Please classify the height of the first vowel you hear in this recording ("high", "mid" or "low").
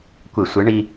high